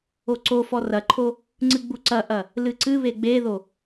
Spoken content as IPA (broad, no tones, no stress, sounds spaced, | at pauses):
o ǀ o f ɔ r ɐ ǃʰ o | ŋ͡ǀ ɨ ɡ͡b u ǀ ɐ ʔ ɐ | l ɨ ǀ ɨ β e ɡ͡b e ð o